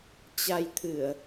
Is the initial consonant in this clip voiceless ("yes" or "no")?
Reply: yes